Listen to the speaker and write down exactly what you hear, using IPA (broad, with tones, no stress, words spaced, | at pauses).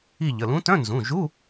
i˦˨ʎə˩˧˩lũ˧˥ tœ̃˧˥˧nzũ˩˧˩ʒu˧˥˧